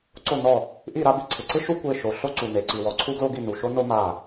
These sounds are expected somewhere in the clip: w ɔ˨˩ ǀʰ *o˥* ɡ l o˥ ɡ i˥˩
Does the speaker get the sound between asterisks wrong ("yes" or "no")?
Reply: yes